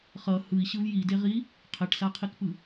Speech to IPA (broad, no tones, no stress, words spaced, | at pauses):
χʌ hɯi̯ɕɯv jideʁi | qʰeʈsaqʰikpɯ